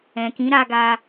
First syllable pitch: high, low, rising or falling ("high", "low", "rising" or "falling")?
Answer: low